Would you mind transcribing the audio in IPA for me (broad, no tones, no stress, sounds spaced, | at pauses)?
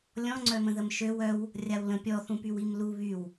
lʲ ɔ̃ ŋ͡ǀ œ m ə̃ ð ə m ʃ ø w œ w | rʲ a w l ə̃ pʲ ɔ θ ũ p y w i m l u β y w